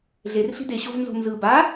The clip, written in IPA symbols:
ɮ e r ɬ i̤ d e ɕ o v n z o̤ n z ɯ b a

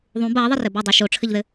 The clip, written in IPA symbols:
ðˤ ũ b ɐː ðˤ ə r ɘ b œ dˤ u ʃ o ʈ͡ʂʰ ɘ ʎ ð ɘ

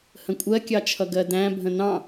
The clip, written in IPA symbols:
h ə̃ kʷʼ ɜ kʲ ɑ t͡ʃʰ ʌ ɡ ɜ d æ̃ bʱ ə̃ n ɑ̃

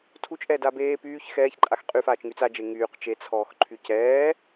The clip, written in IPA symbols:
tʰ u t͡ʃ ʔ ɛː d aː b eː p yː ç x ɛː ç ǃʼ a x qʼ y f aː t͡ʃ ŋ y t͡s a d͡ʒ e ŋ yː q t͡ʃ e t͡sʰ ɔː x ǃʰ y c ɛː

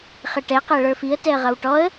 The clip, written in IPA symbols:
χ ɪ ʈ ɛ q ɛ ɭ ə˞ f i ə̯ t ɛ ə̯ ʁ ʌ w ʈ ɔ ə̯

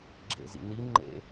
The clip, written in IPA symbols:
ɡ͡ǁ ḛ z ḭ n i ŋ͡ǃ ḛ

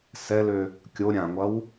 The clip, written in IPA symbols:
s ɛ l ø | kʲ o ɾʲ ã ŋʷ ɐ w

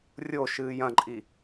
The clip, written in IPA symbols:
rʲ o ʃ ɨː j ɐ̃ ǃʼ i

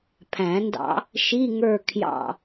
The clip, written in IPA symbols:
pʰ æ̃˨˩˦ n d ɑ̰˦˥ | ʃ i˧˥˧ ŋ ə˞˦˨ kʰ j ɑ̰˦˨

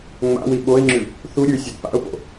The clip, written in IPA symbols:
ŋ͡m a̰ w i ɓ o ɪ̯ ŋ͡ǁ ʉ | θ u ɾʲ ʉ sʲ ɵ d p a̰ ʊ̯ p o̰

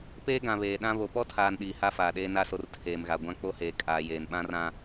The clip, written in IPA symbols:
p eː˦ ɡ ã˨ β eː˨ ɗ ã˦ β o˨ p ɔ˦ tʰ aː˨ n ɗ iː˨ h a˦ f aː˨ ɗ eː˦ n a˦˨ s o˦ r tʰ eː˨ m ɣ a˨ ɡʷ ã˦ k͡p o˦ h eː˨ kʼ aː˨ j eː˨ n ɓ ã˦ r ã˦

